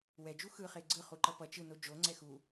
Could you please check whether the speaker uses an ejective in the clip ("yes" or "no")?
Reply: no